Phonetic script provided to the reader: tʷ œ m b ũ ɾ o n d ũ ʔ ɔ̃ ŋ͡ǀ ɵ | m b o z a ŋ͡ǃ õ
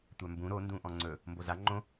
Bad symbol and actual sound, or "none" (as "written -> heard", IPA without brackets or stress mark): none